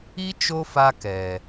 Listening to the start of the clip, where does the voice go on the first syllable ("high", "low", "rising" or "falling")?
high